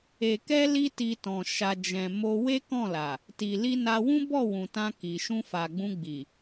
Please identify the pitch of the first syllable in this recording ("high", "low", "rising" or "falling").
low